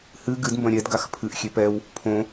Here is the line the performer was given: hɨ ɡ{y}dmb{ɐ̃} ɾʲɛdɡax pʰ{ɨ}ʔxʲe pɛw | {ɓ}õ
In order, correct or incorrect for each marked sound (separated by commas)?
incorrect, correct, correct, incorrect